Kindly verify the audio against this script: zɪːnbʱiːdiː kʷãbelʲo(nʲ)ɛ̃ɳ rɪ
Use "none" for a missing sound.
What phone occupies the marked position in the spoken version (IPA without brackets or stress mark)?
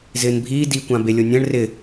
nʲ